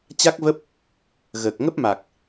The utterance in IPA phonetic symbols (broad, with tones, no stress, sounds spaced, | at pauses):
t͡ɕ a˦˥ k̚ v ə˦˥ p̚ | ɣ əː˨˩ k̚ ŋ ə˦˥ p̚ m a˨˩ k̚